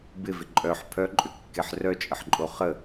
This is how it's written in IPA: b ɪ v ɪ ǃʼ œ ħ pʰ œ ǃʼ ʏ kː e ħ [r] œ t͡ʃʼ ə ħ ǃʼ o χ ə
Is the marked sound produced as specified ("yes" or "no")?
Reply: yes